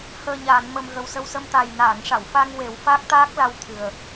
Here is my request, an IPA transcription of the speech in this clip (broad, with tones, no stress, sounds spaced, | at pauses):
h əː˨˩ ɲ aː˨˩˨ n m ə˨˩ m ɣ ə˨˩ w s ə˧ w s ə˧ m t̪ a˨˩ j n aː˨˩˨ ŋ ʂ a˨˩˨ w f a˧ ŋ w e˨˩˦ w f a˦˥ k̚ t̪ aː˦˥ k̚ l a˧ w t̪ʰ ɨ˨˩ ə̯